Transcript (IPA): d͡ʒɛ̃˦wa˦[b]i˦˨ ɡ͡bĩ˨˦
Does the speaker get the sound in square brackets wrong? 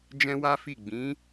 yes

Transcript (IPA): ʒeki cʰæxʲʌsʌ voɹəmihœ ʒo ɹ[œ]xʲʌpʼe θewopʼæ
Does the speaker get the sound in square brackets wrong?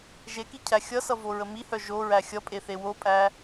yes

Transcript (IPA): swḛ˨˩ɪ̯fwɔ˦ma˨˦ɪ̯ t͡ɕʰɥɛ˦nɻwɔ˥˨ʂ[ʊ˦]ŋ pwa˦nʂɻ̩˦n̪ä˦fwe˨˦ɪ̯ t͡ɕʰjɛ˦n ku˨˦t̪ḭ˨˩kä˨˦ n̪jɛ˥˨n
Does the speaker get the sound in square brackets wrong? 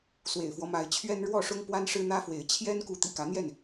no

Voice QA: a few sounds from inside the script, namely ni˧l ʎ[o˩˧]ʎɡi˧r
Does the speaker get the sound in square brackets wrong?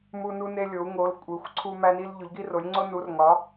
no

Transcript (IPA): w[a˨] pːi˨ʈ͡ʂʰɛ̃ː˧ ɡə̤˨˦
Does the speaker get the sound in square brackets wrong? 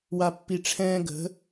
no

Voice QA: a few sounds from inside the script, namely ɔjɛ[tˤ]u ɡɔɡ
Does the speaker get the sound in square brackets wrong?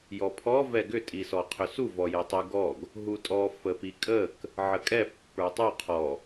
no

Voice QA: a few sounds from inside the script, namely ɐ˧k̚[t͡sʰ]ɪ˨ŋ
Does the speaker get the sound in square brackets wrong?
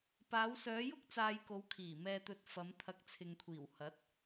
no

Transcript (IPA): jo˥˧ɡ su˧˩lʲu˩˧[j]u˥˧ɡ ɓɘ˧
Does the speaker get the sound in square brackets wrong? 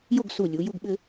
no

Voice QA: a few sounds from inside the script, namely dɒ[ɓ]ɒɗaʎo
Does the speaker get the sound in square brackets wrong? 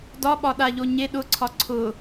no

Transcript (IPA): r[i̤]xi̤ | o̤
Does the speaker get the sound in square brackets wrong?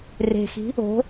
yes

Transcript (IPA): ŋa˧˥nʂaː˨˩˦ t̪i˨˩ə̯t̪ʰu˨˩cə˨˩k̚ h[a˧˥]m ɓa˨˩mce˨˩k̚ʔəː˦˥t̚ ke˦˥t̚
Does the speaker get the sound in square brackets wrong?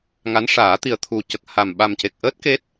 yes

